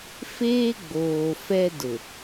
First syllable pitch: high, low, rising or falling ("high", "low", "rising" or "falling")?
high